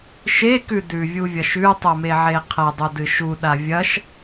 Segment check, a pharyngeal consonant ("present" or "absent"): present